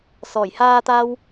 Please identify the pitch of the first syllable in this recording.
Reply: low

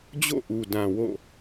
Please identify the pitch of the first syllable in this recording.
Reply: falling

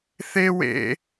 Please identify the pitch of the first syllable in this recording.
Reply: high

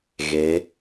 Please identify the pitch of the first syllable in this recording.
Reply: rising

